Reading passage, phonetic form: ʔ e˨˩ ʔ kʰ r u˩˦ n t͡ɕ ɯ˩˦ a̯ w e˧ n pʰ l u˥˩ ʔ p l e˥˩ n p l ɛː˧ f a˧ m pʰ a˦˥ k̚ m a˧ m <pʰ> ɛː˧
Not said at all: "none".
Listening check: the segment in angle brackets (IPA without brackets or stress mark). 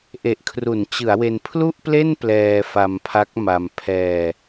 pʰ